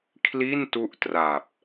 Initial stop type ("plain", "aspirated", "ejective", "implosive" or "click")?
aspirated